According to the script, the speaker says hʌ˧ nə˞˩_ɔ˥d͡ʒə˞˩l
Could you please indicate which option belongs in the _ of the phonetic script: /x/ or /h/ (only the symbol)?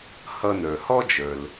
h